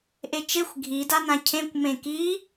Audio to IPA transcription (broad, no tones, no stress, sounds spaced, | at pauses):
ʔ e t͡ʃ e xʷ ɡʱ i d a n ã cʰ ẽ kʷ m ẽ k i